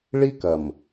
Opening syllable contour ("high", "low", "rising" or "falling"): high